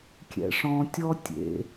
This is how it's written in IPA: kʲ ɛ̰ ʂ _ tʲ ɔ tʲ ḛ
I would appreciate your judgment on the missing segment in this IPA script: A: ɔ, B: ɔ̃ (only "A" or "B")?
B